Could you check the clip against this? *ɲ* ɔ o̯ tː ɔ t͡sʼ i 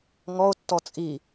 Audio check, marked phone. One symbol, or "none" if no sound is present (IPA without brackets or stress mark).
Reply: ŋ